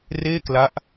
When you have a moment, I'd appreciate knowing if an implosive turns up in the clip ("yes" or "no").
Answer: no